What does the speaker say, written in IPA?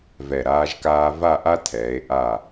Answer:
v ɛ˧˩ ɾ aː˥ ʒ k aː˥ v a˥˧ ʔ a˥ tʰ ɛː˩˧ e̯ ʔ a˧˩

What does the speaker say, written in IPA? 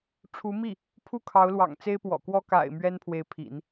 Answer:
ʈ͡ʂʰ u˧˥ m i˥˩ | pʰ u˥˩ kʰ ɑ˧˥ ʊ̯ l w ɑ̰˨˩ ŋ t͡s e˥ ɪ̯ p w ɔ̰˨˩ k w ɔ˥ k a̰˨˩ ɪ̯ m ɥ ɛ˥ n pʰ w e˧˥ ɪ̯ pʰ ḭ˨˩˦ n

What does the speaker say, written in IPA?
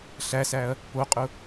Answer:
ɬ æ s æ ɐ̯ | p o qʼ ʊ

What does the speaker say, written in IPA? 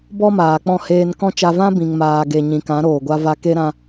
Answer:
b ɔ˦ m aː˨ k͡p ɔ̃˦˨ h eː˧ n k ɔ̃˦ t͡ʃ a˧ v ã˦ b ĩ˨ ŋ m aː˨ ɡ e˨ ɲ ĩ˨ k ã˨˦ ɾ oː˨ ɡʷ a˧ v a˧ k e˦ ɾ ã˧

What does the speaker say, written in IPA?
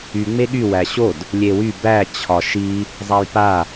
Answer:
y ŋ͡m e ɠ y w æ ɕ o d | lʲ e w y b æ t͡ɕʰ ɒ ʃ i | zˤ a j p a

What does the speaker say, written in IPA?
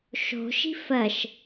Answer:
ʃ o̤ ʃ i̤ f ɜ ʃ

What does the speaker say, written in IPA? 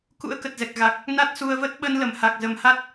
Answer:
k ṵ˧˥ ə̯ k ə˨˩ t̚ z ɛ˨˩ k̚ ɣ a˨˩ k̚ | n a˦˥ t̚ s u˧ ə̯ v ə˦˥ t̚ ɓ ə˧ n l ə˧˩ m h a˨˩ k̚ z ə˨˩ m h a˦˥ t̚

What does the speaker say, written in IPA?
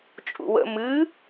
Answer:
t͡ʃʼ ṵ w ə̰ m ɨ

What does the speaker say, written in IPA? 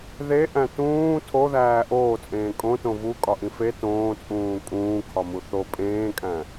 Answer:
ð e ʔ æ̃ t ũː tʰ o ð æː ʔ oː t͡sʼ ẽː kʼ õ t õ v u kʼ ɒ ʔ ĩ f e t õː t͡sʼ ũː kʼ ũː kʰ ɒ m u θ o pʼ ẽː kʼ æ̃

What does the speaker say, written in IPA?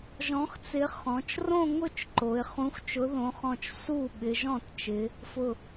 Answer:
ʒ ɔ̃˨˥ x t͡s ɪ˨˥ χ ɔ̃˩˧ t͡ʃ r õ˥˧ ŋ ʊ˥˩ t͡ʃ ǃ o˩˧ ɪ̯ χ ũ˨˥ x t͡ʃ ʊ˨˥ ð õ˨˥ χ ɔ̃˧˩ t͡ʃ s u˥˩ ɓ ɪ˩˧ ʒ ɔ̃˥˩ t t͡ʃ ɪ˩˧ | f ʊ˧˩

